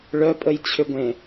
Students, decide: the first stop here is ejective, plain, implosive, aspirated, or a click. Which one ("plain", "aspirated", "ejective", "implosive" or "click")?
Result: ejective